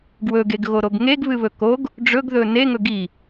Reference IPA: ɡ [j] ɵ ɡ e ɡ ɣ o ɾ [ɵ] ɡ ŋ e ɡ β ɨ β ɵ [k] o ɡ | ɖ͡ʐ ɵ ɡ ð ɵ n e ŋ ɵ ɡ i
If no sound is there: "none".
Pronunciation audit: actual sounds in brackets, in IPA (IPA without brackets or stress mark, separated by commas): w, o, k